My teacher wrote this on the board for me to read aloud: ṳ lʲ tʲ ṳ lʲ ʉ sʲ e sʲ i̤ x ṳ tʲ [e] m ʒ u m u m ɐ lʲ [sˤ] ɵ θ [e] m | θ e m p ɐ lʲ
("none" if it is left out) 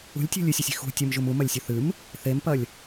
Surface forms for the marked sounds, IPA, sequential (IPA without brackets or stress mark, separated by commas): ɨ, sʲ, ɨ